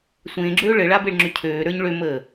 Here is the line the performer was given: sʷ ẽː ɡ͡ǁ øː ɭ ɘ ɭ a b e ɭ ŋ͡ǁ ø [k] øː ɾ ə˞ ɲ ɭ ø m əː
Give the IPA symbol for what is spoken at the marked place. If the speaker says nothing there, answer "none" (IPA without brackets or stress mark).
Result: cʰ